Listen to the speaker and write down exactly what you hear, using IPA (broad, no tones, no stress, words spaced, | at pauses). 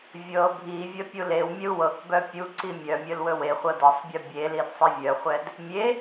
vʲɤ bʱivʲə pʲulewmʲəu̯ wɤkbœ pʲuǀi mʲœmʲɵl wɵweχʷɤ dɤsˤbʲɤ bʲelid sˤivʲœχʷɛd | mʲe